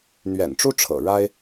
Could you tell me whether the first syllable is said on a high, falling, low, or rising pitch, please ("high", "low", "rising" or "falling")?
low